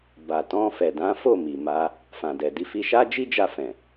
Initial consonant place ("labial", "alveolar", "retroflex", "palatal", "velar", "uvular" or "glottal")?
labial